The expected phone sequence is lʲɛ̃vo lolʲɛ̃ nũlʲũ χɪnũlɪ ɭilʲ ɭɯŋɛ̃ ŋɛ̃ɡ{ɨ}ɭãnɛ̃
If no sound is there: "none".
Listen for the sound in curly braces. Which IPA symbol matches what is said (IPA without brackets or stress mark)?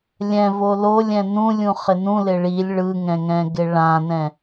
ɪ